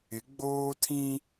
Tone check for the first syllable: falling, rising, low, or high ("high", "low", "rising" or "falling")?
rising